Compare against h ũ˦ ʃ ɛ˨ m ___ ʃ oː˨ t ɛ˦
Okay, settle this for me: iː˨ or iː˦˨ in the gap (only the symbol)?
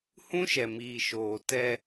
iː˨